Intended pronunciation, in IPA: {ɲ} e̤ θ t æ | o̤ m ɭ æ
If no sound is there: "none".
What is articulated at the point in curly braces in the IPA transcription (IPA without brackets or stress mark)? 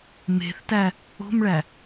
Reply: m